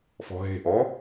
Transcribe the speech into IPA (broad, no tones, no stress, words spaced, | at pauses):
fɔ̤ɦe̤ʔɔ